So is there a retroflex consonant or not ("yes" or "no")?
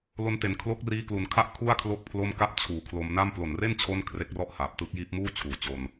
no